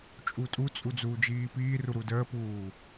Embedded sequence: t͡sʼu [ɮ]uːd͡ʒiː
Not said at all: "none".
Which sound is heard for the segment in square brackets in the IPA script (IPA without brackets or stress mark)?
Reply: d͡z